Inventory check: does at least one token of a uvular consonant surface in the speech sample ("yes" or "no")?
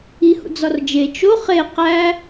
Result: yes